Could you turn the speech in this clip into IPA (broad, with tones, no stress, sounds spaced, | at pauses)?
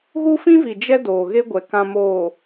ɣ u˦ f ĩ˦ v i˨ d͡ʒ ɛ˦ d oː˨ ɣ e˦ ɡʷ ɛ˨ k ã˨ m oː˨